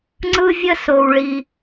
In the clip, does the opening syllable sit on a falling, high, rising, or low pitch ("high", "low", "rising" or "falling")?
high